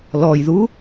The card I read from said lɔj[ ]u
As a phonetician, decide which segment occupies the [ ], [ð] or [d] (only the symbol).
ð